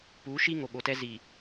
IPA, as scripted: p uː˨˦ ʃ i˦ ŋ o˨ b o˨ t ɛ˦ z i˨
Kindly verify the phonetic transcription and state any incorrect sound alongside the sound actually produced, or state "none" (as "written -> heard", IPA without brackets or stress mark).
b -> ɓ